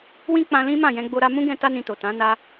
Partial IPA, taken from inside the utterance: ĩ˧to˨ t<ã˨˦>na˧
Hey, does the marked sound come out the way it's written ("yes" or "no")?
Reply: yes